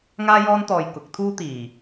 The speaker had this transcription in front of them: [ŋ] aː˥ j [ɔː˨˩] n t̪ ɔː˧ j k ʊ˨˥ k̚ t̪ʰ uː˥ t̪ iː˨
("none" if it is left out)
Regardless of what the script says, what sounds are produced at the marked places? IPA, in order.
ŋ, ɔː˥

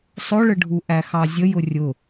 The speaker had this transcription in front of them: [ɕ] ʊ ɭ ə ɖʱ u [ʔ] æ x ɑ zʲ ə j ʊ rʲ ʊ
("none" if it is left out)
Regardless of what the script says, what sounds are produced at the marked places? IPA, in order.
sˤ, ʔ

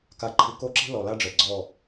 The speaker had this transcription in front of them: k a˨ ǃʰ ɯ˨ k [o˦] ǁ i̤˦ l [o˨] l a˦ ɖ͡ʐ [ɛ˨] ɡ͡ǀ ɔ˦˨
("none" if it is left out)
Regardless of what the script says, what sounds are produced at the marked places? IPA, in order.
o˦, ɔ˨, ɛ˨

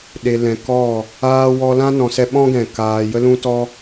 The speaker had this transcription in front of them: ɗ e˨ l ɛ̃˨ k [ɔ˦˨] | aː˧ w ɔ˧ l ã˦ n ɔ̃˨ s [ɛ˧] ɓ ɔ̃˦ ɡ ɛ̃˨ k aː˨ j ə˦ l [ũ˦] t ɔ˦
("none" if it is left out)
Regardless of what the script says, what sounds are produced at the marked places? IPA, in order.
ɔ˦˨, ɛ˧, ũ˦

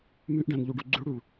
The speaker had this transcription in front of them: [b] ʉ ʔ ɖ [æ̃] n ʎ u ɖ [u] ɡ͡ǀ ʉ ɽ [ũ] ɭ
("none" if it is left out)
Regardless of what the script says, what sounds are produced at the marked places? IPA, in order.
m, æ̃, u, u

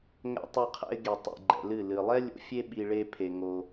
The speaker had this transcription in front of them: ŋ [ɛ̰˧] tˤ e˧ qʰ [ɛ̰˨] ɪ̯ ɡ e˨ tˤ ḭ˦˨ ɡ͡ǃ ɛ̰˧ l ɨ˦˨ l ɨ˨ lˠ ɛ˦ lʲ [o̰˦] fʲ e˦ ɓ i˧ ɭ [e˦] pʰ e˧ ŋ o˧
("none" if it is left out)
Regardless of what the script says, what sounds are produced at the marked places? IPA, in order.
ɛ̰˧, ɛ̰˧, o̰˦, e˦

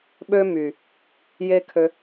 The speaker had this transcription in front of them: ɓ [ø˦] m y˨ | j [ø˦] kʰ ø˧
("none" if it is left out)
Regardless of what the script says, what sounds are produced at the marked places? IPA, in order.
ø˦, e˦

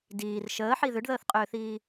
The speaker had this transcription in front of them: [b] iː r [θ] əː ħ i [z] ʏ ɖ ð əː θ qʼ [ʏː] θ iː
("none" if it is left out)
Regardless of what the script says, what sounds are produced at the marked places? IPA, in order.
d, ʃ, ð, ʏː

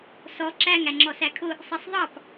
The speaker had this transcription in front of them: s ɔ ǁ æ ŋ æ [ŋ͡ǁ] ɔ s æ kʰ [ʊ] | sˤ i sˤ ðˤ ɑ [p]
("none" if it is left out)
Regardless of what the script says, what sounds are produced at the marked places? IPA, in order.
ŋ͡ǁ, ʊ, p

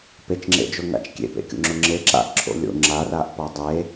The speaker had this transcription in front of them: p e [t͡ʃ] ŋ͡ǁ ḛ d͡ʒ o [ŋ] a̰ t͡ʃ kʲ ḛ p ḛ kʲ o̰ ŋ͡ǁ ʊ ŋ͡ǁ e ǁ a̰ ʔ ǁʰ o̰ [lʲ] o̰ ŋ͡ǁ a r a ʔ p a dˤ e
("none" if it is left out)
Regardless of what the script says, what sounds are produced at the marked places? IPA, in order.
t͡ʃ, ŋ, lʲ

